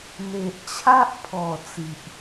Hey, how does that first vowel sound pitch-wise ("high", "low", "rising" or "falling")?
low